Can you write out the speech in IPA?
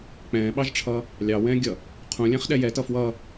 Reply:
k͡pɛ̃ːɓɑʒʈ͡ʂʰʌː | lʲɑwɛ̃ː ɡʲʌ | qʰũlʲæ̃χ ɗɛjɛtʌ fwʌː

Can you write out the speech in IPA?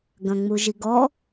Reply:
ɡɐ̃ŋ͡muʒiɡɔ

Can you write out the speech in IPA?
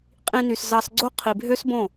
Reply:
qʼĩ˧ny˨s zɑ˧sɡ͡ǀo˦ qʰi˨bʱø˦sbõ˦˨

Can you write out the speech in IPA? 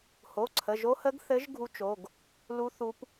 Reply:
ho˩˧˩ǀʰə˩˧˩ʒo˧˥hə˧˥ɡ θɘ˧˥ʒ ɡʱu˧˥t͡ʃo˩˧˩ɡ | lu˧˥ θu˧˥p

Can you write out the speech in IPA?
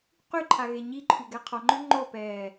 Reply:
qyǃʰa ɣeɲiǃʰy ɡɛqʰɔŋ͡ǃø ŋ͡ǃopɛː

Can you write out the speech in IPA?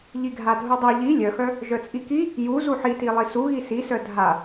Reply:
ʎiɡʱadʱudˤu ʎi lʲœxœ | ʒœt͡sʼiki | ju zuħitilˠi su ɣisisœ dʱa

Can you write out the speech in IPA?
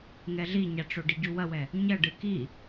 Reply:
ŋɛɮiɲaʈ͡ʂo ɖiɟuwɐwɛ | ɲɐɖɨ ki

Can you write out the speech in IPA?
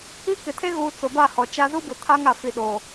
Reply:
i˦ kɪ˨tʰe˦ ɣuː˦ t͡sʊ˨ba˦˨ hɔ˨t͡ʃa˦ zu˦bʊ˨ tʰa˦ŋa˨fi˨ ɗo˨

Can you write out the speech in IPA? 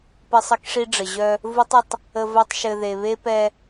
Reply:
pɘ˦sˤə˦kʂi˦ɖ͡ʐə˨ ʑœ˧ | vu˦tˤə˧tˤ | ə˧v œ˦tˤʃɘ˧ ðe˨βe˦pɛ˧

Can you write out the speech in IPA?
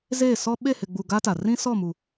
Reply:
zeː˦˨ sɔ˦ ɓe˦˨hɪ˨ɡ͡bu˨ ɡa˦ta˨ rĩ˦sɔ˦˨mu˨

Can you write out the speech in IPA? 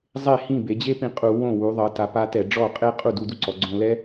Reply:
zˤe˥˩hĩ˥˩be˩˧d͡ʑe˥ pĩ˧qʼu˧˩˧ wõ˥˩ wu˩˧ðˤɤ˩˧ta˩˧pa˧ tɛ˧˩˧ɖ͡ʐɔ˥˩ qʼe˥ qʼu˥˩du˧du˥ǀɔ˩˧ ɡ͡ǀõ˧lɛ˥

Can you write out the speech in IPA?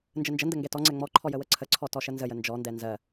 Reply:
nd͡ʒənd͡ʒəndə ŋɡɛtɔŋ͡ǀɛ ŋ͡mɔǃʰɔ jəwəǀʰəǀʰɔ tɔʃənzəjə nd͡ʒɔndɛ nzɜ

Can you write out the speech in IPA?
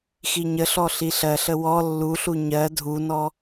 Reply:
xiɲəɬɔ ɬiɬɜɬə wɔ lːuɬu ɲɜ dʱunɔ

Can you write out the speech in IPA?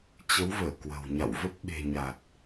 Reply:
t͡ɕə˨˦wvəː˧˩ kwə̤˨˩w ɲa̰˧˨wvə˦˥p̚ ɓe̤˨˩ɲa˨˩t̚

